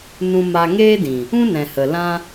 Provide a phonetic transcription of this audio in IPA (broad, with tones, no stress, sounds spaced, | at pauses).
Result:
n ũ˧ m a˧ ŋ eː˦ d ĩ˨ | ũ˦ n ɛ̃˨ h ə˨ l ã˦